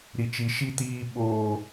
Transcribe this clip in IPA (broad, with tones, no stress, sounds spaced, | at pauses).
ɾ i˦ t͡ʃ i˦ ʃ i˦ t iː˦ ɓ oː˦